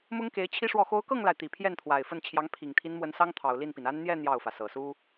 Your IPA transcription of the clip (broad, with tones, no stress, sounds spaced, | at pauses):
m ʊ˥ ŋ k e˧˥ ɪ̯ t͡ɕʰ i˥ ʂ w ɔ˥˩ x o˧˥ ʊ̯ k ɤ˥˩ ŋ l a˩ ɪ̯ t̪ i˨˩ pʰ j ɛ˥˩ n t̪ʰ w a˨˩ ɪ̯ f ə˥˩ n t͡ɕʰ j ɑ˧˥ ŋ pʰ i˨˩ ŋ t̪ʰ i˧˥ n m w ə˧˥ n s ɑ˥ ŋ t̪ʰ ɑ˨˩ ʊ̯ l i˥˩ n p i˩ n a˥ n n̪ j ɛ˥˧ n̪ j ɑ˥˩ ʊ̯ f ä˩ s ɤ˨˩ s u˥